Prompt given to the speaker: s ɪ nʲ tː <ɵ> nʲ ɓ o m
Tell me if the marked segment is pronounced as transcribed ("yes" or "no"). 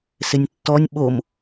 no